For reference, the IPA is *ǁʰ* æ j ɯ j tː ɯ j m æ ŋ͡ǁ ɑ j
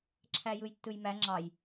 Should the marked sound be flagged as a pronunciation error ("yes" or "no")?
no